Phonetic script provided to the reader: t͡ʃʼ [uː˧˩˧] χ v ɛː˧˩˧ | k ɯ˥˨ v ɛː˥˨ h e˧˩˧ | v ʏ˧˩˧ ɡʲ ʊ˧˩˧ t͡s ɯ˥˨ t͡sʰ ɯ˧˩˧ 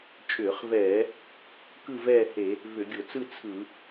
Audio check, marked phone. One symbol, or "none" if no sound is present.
ʏː˧˩˧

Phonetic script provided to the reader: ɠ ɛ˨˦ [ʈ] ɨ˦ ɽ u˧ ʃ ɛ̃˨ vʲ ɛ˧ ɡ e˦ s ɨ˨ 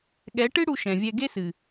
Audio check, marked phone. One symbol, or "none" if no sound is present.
ʈ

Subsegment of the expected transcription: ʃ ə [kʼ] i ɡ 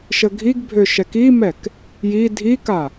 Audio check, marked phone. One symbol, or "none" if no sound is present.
ɡʱ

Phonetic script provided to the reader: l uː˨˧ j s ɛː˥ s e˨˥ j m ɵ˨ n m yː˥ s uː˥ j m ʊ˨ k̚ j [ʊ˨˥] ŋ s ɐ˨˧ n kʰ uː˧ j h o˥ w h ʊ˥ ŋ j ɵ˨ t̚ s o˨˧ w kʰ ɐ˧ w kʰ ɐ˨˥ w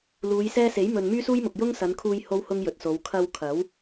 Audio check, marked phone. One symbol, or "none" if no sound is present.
ʊ˥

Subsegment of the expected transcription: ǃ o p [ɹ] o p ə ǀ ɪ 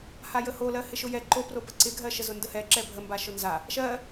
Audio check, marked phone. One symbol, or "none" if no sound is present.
r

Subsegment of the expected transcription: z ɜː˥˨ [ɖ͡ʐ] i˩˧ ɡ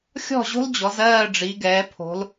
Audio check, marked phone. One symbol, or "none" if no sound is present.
ɖ͡ʐ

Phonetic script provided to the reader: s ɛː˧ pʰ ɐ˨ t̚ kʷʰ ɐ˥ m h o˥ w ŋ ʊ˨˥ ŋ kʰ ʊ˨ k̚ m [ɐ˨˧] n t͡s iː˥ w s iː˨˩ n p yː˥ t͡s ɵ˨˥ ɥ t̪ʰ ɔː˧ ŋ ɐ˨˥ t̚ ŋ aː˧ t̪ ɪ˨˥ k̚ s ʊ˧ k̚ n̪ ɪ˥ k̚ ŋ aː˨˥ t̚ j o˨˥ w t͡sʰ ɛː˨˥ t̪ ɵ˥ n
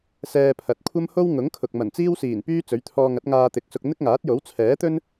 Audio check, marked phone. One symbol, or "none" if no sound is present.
ɐ˨˩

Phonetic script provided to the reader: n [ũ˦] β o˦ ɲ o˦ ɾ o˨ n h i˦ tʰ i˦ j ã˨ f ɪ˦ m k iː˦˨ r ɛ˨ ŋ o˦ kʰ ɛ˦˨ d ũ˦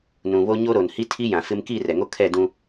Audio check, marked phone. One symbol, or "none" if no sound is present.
ũ˨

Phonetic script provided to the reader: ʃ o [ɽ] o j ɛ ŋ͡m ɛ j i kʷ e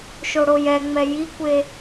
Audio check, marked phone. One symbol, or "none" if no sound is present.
ɽ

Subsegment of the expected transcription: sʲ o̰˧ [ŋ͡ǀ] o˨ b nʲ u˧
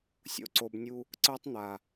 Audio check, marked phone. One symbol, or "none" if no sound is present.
ǀ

